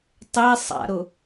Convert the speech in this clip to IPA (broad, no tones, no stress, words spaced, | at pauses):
tˤe sˤa̰ɾʊ